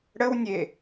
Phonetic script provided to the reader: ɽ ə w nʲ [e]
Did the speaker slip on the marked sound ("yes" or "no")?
no